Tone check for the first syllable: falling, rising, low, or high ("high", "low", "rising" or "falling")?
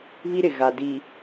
high